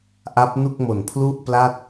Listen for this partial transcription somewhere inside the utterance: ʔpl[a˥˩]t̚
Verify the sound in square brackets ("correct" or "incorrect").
correct